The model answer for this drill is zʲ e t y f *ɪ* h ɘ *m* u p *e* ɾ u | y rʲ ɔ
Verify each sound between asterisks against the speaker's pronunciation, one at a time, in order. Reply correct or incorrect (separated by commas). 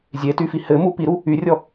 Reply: incorrect, correct, incorrect